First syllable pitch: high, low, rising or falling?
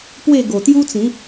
falling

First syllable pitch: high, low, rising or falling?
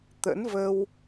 rising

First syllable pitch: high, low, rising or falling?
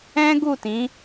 high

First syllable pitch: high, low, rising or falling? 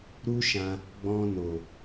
high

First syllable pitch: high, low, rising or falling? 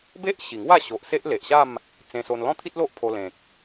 high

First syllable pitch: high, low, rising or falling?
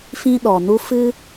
high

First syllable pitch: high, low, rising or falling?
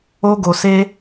high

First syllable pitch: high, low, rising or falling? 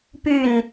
falling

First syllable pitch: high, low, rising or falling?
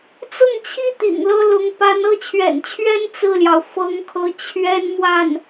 falling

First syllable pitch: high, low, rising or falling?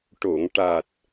low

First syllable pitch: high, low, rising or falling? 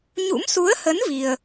rising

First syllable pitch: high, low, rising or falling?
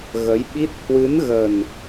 rising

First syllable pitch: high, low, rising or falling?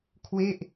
falling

